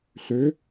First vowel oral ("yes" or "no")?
yes